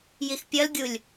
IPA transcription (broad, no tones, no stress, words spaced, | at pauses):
jixpʲʌl ɡʲulʲ